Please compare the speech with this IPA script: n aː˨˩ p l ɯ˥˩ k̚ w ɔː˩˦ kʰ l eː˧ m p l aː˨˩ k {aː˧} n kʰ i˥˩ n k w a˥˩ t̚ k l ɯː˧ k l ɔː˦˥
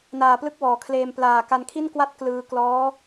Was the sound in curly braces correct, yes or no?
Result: no